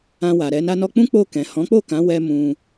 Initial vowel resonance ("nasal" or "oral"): nasal